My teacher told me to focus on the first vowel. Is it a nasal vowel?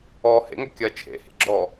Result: no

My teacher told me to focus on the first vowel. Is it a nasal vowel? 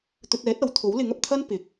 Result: no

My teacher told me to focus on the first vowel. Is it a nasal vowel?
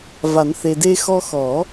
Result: no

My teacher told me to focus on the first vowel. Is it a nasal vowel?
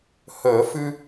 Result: no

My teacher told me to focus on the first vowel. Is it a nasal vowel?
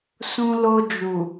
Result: yes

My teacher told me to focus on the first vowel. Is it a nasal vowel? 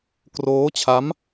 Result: no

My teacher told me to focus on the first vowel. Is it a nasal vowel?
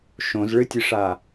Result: yes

